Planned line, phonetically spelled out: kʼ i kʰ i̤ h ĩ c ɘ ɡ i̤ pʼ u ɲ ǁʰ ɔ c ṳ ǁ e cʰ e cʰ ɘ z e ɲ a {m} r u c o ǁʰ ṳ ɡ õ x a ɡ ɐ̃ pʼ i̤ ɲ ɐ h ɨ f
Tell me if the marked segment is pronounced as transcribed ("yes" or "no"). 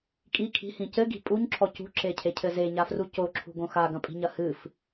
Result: no